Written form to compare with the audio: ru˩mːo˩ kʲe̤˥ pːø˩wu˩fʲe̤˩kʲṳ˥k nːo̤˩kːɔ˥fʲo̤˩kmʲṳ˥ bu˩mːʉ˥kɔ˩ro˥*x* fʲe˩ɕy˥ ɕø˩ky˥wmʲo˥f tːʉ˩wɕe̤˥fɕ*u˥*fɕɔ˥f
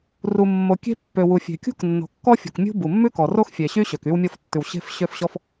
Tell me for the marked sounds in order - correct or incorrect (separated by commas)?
correct, incorrect